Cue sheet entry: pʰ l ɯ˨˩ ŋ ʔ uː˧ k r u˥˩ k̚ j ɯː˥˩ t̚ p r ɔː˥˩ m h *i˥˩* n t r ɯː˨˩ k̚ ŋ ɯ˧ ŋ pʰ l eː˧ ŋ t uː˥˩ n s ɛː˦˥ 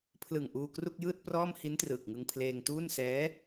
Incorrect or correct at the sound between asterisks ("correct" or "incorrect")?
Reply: incorrect